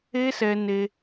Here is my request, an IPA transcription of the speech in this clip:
e˦ s ɛ˧ n e˧

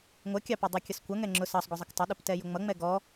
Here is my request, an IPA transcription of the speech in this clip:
ŋʷ ʌ kʲ ɑ p ʌ dˤ u kʲ ʌ s kʷ ʌ ŋ ɛ ŋ͡ǁ ʊ s ɑ sˤ ɡʷ ʌ zˤ ɪ k tˤ ɪ ɗ ʊ p t ɛ j ʊ ŋ͡m ʌ ŋ͡m ɛ ɡ ɔ

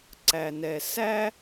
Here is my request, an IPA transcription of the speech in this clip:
ǀ æ˨ n ɛ˨ s æ˦

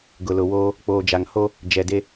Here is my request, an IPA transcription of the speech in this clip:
ɡ ʊ˨ l ʊ˨ w oː˦ | k͡p oː˨ d͡ʒ a˨ ŋ h o˦ | d͡ʒ ɛ˨ d e˦

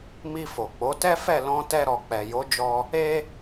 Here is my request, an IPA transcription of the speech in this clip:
m i˧ f o˨ k͡p o˨˦ t ɛ˦ f ɛ˦˨ l ɔ̃˧ t ɛ˧ ɾ ɔ˨ k͡p ɛ˨ j o˨˦ d͡ʒ ɔ˧ | e˧

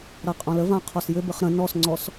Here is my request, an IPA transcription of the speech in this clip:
ɾ a qʼ ɔ̃ l ə v ã qʰ ɔ s j ʏ b ɘ χ ɾ ə̃ n ɔ s ŋ͡ǀ ɔ s

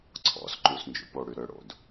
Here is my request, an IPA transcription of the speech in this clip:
ǀʰ ɔ̰ s ǃ u s n d͡ʒ ṵ p o ɽ y ɾ ø ɽ o̰ d

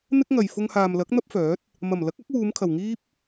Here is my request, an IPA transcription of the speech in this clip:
n̪ ɪ˥ k̚ ŋ ɐ˨ j f ʊ˧ ŋ h aː˨ m l ɐ˨˥ k̚ n̪ ɐ˥ p̚ f œː˨˥ t̚ | m ɐ˨˩ m l ɐ˨˥ k̚ ɐ˨˥ k̚ w uː˨˧ m kʰ ɐ˨˩ w ŋ iː˥ p̚

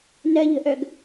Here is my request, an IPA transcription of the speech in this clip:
n ɜ ʎ ə̤ ʔ œ ɡ

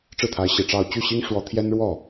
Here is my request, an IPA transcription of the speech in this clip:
ʈ͡ʂ ɻ̩˥˩ t̪ʰ a˧˥ ɪ̯ ɕ i˨˩ ʈ͡ʂ ɑ˥˧ ʊ̯ t͡ɕ y˥˩ ɕ i˥ ŋ ʂ w ɔ˥ t̪ʰ j ɛ˥ n ɻ w ɔ˥˩

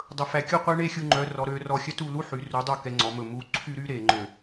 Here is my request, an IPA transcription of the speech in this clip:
dˤ ɵ˨ f æ˨ kʲ o˦ qʷ ɛ˦ ɳ e˦˨ xʲ u˨ ŋ͡ǃ œ˨ r ɔ˨ ɾ ø˨˦ r ɔ˨ xʲ œ˦ t u˦˨ l u˦ ħ y˨ r u˨˦ dˤ o˦˨ k ɛ˨ ŋ͡ǀ ɔ˨ m ɵ˨ m u˨ ǀʰ y˦ ɾ y˦ ɾ e˨ ŋ͡ǃ ø˨

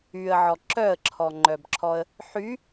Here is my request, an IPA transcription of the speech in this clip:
y ə̯ ʕ ɔ ǁ œ ə̯ ǁʰ ɔ ŋ͡ǃ œ b ǁʰ ɔ ə̯ | ħ y

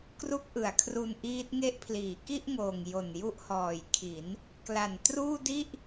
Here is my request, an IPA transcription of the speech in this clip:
k r u˦˥ k̚ ʔ ɯ˩˦ a̯ kʰ r u˧ n ʔ iː˦˥ t̚ ŋ e˦˥ ʔ pʰ l iː˩˦ k i˥˩ ʔ ŋ oː˨˩ ŋ j o˨˩ n j u˦˥ ʔ h ɔː˨˩ j kʰ i˩˦ n | k l a˨˩ n t r uː˥˩ d i˥˩ ʔ

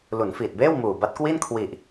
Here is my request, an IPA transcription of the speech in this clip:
l u˩˦ n f iː˨˩ t̚ b eː˥˩ w m uː˨˩ b a˦˥ t̚ k w i˥˩ n kʰ w i˨˩ ʔ

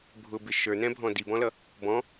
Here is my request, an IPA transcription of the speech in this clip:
bʱ ʊ b ɪ ʃ ə˞ n ɛ̃ bʱ ɔ̃ d i b ɔ̃ l ʌ | b ɔ̃

